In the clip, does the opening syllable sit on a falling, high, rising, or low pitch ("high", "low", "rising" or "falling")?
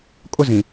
high